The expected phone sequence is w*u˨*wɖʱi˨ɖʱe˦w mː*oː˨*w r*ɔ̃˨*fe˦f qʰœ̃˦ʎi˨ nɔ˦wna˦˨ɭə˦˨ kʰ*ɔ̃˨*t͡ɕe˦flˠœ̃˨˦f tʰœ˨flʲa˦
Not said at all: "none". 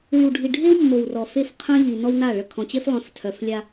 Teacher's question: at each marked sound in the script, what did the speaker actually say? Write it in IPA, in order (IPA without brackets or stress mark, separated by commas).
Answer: y˨, o˨, ɔ˨, ɔ̃˨